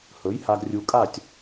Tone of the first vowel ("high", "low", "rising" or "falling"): rising